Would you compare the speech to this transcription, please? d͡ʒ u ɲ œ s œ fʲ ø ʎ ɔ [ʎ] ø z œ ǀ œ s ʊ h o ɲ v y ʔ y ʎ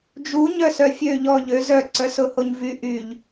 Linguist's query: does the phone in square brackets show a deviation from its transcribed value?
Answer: no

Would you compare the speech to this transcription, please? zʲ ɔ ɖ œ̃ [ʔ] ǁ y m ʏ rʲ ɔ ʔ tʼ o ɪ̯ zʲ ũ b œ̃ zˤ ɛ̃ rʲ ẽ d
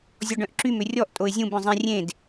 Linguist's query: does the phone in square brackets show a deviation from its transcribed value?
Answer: no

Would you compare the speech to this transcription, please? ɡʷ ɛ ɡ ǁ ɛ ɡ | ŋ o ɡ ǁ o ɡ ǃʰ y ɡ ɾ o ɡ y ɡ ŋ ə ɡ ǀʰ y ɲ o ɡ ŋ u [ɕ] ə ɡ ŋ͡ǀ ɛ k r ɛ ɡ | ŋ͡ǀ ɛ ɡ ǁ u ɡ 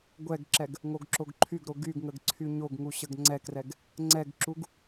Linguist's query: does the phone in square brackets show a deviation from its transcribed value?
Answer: no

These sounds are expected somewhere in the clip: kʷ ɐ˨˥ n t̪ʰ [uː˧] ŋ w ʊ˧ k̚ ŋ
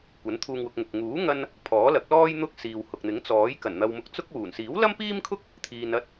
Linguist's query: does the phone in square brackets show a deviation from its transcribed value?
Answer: no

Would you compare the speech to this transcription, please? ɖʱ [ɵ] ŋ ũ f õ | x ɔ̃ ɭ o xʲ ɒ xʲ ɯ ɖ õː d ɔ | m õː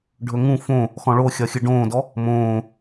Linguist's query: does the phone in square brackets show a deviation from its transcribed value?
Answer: no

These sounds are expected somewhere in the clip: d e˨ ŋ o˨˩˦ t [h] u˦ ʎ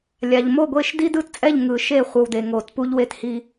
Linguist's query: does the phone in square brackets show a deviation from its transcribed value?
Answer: yes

